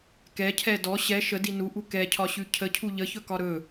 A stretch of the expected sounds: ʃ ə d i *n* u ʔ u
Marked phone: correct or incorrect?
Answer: correct